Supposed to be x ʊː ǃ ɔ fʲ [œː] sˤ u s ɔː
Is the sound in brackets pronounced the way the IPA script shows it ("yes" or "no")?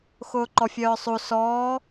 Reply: yes